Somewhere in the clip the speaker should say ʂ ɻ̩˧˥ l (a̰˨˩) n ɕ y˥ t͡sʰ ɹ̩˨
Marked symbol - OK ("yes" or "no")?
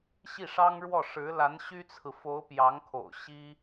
no